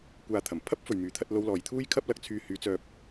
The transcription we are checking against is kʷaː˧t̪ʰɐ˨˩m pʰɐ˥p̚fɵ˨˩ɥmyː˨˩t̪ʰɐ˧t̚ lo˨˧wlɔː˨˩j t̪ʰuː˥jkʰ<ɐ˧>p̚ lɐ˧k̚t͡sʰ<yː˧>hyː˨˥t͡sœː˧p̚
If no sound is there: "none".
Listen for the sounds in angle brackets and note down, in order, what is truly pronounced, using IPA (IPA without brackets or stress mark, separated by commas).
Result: ɐ˥, yː˧